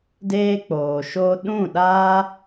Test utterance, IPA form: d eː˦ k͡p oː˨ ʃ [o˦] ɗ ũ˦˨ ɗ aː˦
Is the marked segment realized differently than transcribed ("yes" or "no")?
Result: no